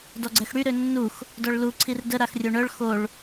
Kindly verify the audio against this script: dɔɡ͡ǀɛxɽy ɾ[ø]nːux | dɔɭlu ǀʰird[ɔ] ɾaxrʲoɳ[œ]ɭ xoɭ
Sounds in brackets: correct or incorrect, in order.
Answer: correct, incorrect, correct

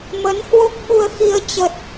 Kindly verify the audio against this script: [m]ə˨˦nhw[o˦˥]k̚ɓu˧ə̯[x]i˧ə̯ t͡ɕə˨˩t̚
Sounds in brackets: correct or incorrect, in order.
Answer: correct, correct, correct

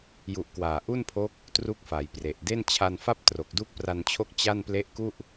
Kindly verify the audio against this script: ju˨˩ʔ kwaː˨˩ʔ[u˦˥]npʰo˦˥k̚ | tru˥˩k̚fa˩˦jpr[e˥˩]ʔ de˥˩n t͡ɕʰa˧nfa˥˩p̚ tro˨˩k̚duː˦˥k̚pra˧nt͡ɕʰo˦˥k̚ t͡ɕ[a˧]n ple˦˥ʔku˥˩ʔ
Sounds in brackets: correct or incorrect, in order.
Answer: incorrect, incorrect, incorrect

